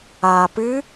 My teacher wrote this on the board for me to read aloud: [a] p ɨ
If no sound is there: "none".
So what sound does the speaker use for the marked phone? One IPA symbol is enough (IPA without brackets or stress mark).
a